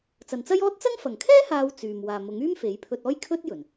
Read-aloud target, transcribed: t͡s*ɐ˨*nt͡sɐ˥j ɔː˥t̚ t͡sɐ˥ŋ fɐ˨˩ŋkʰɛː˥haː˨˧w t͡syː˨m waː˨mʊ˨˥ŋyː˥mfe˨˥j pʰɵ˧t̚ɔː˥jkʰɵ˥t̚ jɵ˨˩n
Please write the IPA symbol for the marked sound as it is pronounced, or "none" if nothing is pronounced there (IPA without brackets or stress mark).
ɐ˨